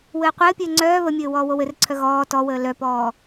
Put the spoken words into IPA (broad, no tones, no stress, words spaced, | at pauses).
wɘːqʷɘːpʲɘː ŋ͡ǀœː βəmʲɘː wɔːwowɘrǀʰœ ɣɔː tɔwəː lœpɔː